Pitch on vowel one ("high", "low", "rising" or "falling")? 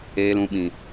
low